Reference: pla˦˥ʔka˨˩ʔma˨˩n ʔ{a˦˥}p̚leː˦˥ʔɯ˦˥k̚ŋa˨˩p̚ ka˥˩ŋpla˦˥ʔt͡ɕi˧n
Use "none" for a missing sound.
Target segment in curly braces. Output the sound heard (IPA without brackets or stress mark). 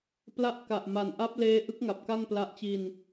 a˦˥